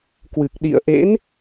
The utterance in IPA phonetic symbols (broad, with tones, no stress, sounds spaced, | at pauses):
k w ɨ˨˩ k̚ ɗ ḭ˧˨ ə̯ ʔ ḛ˧˥ n